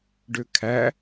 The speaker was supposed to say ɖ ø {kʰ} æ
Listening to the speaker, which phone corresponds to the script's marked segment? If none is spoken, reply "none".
kʰ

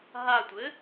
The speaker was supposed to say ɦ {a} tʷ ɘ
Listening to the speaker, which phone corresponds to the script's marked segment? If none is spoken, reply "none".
a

